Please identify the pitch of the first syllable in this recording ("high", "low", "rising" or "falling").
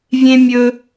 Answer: high